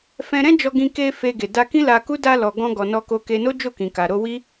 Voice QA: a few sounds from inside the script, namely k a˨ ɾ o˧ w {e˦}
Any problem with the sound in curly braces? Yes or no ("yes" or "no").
yes